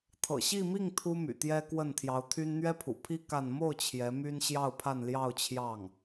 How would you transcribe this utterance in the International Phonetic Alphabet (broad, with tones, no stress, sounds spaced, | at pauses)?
t̪ʰ ɤ̰˨˩ ɕ i˥˧ m i˥˩ ŋ t̪ʰ u˥ m y̰˨˩ t̪ j ɛ˥ k w ə˥˩ n t̪ʰ j ɑ˧˥ ʊ̯ t̪ʰ y˥ n n̪ ɥ ɛ˥ pʰ ṵ˨˩ pʰ i˥ k a˥˧ n m o˥˩ ʊ̯ t͡ɕʰ j ɛ˧˥ m y˥ n ɕ j ɑ˥˧ ʊ̯ pʰ a˥˧ n l j ɑ˥˧ ʊ̯ t͡ɕʰ j ɑ˥˩ ŋ